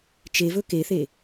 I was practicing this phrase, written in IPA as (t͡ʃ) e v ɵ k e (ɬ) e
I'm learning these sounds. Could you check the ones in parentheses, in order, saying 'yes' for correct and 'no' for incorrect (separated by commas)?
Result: yes, no